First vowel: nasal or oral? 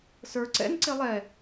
oral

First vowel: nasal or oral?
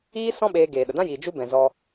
oral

